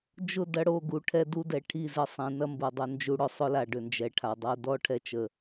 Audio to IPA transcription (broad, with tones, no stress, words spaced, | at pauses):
d͡ʒʊ˦˨dɐ˦ɽo˦˨ɡu˨ ʈʰɛ˦du˦dɛ˨ ʈʰi˦˨zɪ˦˨ sˤĩ˨nɐ˦mbu˨ dˤʊ˨nd͡ʒu˨ɽʊ˨ sˤʊ˦la˨ ɖʏ˨nd͡ʒɛ˨ʈʰa˨ dˤo˨dɔ˦ ʈʰɛ˦t͡ʃə˨